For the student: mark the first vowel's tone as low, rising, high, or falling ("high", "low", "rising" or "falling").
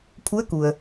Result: rising